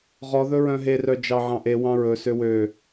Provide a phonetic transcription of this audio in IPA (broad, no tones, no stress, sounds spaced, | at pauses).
ʁ ɔ ð ɵ ɹ œ̃ ɦ e r œ d͡ʒ ɑ ʕ ɑ̃ ʔ e w ɑ̃ ɹ ɵ s ø w ø